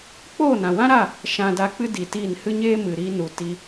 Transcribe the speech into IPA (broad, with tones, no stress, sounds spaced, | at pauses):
k͡p oː˦˨ n ã˨ w ã˦ ɾ a˦˨ | ʃ ã˧ d a˧ k͡p ɨ˦ d i˨ t iː˦˨ n h ɨ˦ ɲ eː˦ m ɨ˨ ɾ i˧ n u˨ t i˦